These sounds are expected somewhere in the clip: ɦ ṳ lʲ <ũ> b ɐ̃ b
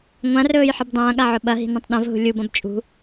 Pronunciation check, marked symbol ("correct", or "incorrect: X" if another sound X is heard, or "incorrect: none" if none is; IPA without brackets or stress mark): incorrect: u